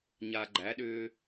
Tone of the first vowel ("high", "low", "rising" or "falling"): low